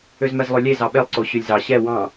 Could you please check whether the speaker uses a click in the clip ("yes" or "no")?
yes